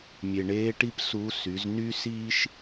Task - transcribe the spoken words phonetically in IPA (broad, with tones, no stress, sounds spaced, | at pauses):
mʲ e˩ ɳ eː˧˥ ʈ i˥ p s u˧˥ s y˩˧ z n y˥ s iː˥ ʃ